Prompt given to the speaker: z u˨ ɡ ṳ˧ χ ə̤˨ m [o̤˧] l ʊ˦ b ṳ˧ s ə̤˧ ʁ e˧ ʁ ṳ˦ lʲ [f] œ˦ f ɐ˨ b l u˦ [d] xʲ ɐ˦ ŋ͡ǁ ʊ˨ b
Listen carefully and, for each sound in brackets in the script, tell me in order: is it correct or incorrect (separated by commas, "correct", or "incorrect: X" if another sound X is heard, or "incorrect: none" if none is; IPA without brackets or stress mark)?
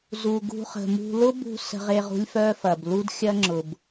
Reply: incorrect: ṳ˧, correct, correct